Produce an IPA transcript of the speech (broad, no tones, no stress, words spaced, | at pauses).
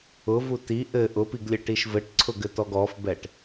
ʊvu ti ʔɘ ʔʊpiɡlʲɘʈiʃ vɘʈǀʰʊɡɘtɔɡ ɔfbɛʈ